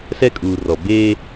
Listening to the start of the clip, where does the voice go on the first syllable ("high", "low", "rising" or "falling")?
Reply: high